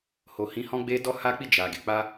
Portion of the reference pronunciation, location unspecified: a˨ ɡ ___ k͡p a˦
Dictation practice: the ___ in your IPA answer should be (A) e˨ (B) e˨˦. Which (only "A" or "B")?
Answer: B